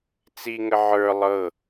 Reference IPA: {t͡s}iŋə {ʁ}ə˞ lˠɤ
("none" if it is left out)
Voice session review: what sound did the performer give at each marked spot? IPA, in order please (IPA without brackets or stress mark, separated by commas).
t͡s, ʕ